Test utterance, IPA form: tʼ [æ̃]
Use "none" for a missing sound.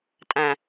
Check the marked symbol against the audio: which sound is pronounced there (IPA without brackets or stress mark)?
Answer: æ̃